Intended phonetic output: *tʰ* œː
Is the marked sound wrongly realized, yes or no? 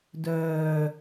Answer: yes